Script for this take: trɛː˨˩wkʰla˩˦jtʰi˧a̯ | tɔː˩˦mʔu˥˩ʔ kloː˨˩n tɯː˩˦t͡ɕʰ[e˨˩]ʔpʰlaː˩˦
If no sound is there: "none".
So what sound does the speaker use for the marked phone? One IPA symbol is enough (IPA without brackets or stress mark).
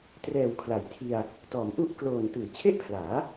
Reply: e˥˩